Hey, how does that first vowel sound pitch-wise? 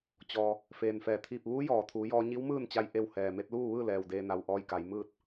low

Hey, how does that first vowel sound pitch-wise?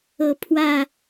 low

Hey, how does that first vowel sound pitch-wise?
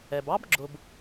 low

